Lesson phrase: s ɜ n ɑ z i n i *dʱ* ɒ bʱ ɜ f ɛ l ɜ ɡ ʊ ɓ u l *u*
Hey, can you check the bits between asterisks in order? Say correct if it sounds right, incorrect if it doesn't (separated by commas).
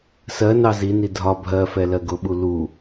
correct, correct